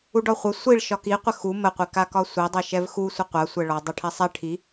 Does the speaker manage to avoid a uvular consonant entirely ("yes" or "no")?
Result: no